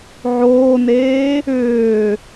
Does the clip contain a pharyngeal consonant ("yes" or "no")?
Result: yes